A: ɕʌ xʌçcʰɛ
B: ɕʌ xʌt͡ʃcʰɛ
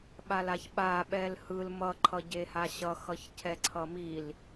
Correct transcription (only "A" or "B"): A